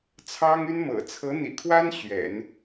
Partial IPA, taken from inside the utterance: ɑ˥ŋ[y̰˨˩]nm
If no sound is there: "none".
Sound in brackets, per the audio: y˥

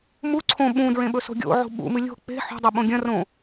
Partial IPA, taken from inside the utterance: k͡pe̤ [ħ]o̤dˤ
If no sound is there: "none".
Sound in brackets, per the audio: ħ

